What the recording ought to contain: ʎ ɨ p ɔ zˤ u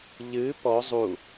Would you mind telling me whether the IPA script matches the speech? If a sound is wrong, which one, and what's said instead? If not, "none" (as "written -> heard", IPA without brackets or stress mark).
none